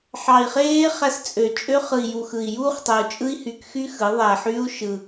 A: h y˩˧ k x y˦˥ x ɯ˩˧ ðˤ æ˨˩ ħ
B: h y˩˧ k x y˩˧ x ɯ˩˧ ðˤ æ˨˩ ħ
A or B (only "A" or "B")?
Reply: A